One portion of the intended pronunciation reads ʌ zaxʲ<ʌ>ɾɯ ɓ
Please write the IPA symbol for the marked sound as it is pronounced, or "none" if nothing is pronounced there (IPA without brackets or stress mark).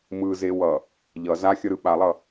ʌ